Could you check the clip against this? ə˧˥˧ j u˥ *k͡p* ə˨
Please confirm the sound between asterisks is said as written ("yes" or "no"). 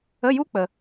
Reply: yes